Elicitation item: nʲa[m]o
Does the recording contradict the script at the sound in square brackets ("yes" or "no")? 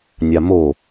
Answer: no